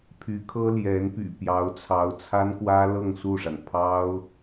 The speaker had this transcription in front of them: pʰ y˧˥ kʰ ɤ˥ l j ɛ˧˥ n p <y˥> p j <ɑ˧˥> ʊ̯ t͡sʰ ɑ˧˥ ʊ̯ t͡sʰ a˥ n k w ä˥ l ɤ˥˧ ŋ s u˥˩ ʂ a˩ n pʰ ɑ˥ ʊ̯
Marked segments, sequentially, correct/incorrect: incorrect: y̰˨˩, correct

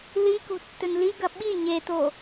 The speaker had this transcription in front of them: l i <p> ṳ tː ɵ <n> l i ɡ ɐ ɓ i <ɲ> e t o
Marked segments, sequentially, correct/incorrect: incorrect: k, correct, correct

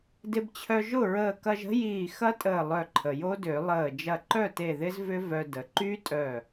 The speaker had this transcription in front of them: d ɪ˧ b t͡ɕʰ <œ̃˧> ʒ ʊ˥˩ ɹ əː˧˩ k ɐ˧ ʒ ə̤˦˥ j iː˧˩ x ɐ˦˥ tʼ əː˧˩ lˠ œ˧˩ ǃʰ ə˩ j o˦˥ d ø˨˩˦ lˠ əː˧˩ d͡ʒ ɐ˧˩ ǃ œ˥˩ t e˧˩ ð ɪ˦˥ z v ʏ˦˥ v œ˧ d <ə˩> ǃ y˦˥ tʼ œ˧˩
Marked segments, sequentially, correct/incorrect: incorrect: œ˧, correct

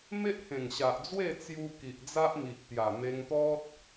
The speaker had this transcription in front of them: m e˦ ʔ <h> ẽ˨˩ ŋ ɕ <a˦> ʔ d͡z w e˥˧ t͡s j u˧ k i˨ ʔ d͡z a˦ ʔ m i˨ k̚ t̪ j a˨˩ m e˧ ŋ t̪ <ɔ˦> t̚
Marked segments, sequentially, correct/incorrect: correct, incorrect: a˨, correct

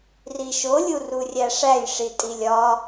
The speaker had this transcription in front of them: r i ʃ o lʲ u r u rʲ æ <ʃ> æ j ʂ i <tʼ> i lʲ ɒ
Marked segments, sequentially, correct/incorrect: incorrect: ʂ, correct

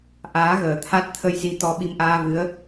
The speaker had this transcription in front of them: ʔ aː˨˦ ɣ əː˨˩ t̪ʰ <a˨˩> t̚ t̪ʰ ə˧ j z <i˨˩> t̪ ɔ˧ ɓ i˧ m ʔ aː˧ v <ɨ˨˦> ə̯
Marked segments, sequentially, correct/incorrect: incorrect: a˦˥, incorrect: i˧, correct

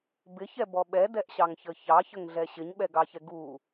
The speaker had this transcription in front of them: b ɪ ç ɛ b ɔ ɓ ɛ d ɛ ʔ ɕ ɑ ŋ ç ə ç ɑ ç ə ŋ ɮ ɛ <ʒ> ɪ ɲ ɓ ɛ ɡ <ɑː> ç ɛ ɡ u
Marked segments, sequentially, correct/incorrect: incorrect: ɕ, incorrect: ɑ

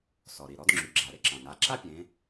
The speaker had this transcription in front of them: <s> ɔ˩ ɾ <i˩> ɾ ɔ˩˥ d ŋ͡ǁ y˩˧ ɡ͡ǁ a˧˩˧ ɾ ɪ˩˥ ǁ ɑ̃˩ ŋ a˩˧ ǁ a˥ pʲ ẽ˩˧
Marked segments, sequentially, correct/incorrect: correct, correct

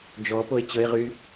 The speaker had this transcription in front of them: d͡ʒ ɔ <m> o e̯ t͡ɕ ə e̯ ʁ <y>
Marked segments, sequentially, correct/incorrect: incorrect: p, correct

